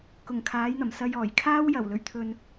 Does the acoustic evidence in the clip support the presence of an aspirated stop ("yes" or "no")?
yes